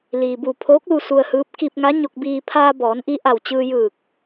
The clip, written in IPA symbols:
liː˩bu˧˩ pʰoː˧˥k̚lu˧ su˧ə̯hɯː˧˥p̚ ki˧p̚ŋa˧˥ɲo˧k̚biː˧ pʰaː˧bɔː˩˧nʔi˧ ʔa˧˩wt͡ɕɯː˧jɯː˧˩k̚

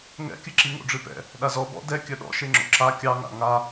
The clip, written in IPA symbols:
ŋɛ̰kʲɨǁi ŋo̰ɖ͡ʐɨpɛ̰ | ɗazɔ bɔ̰ dɛ kʲœɗɔ̰ ʃeŋ͡ǁo̰ǁa kʲɑŋa̰ ŋa

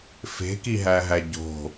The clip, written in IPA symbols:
fe̤kiɦæɦæ ɟo̤

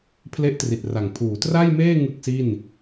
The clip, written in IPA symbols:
pʰle˥˩ʔtri˨˩t̚ra˨˩ŋ pʰuː˩˦tra˥˩jmeː˥˩ ŋɯ˥˩k̚si˥˩n

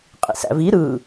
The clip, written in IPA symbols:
qʼḭsæ̰vi ɾɯ

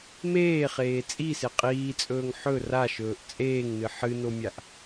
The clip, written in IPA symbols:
meːχeː t͡sʼise qʼiːt͡sʼɵːŋ ħɵ raʃɵːʔ t͡sʼeːŋnɨ ħɨnomʲaʔ

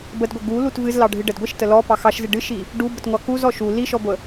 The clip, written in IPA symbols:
bədɡʷə ɡu lutvɨz lɑɖʱɨɖəd ɡʷiʃtə lɔ pɑxɑʃzɨ ɖɨʃi | ɖubətŋʷɑ kuz ɔʃu liʃɔɡʷə

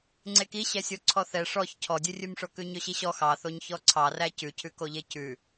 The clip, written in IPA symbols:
ŋ͡ǀekiɕɛ sʲoǀʰɔθɛ ʂɔç cʰɔdʲʉrʲʉmʂo kʉɲɵɕiɕɔ xɑθoɲ çɔǀʰɑræ cʉcʰʉkoʎe cʉ

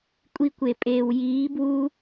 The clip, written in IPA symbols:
kʷʼi˧kʷe˨pʼeː˨w jiː˨˦bwu˦

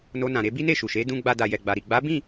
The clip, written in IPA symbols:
no˧nã˨ɾe˨˦ bi˦ne˦˨ʃu˨ʃe˨˦ dũ˧ɡ͡ba˧da˨ jɛ˨ɡ͡ba˨ɾi˨ ɡ͡ba˨˦bĩ˦˨

